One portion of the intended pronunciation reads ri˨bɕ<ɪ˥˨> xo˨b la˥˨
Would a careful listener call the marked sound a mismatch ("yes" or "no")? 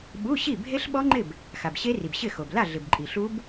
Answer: no